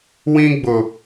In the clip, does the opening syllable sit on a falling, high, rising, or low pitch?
high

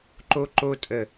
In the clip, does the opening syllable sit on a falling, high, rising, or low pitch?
high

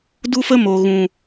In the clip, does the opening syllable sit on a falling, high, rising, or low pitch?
high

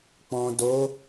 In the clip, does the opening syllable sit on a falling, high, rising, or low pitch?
low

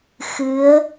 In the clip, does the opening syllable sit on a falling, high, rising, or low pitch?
rising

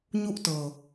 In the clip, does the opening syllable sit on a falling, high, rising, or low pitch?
high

